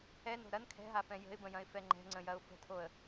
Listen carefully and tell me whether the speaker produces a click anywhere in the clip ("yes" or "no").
yes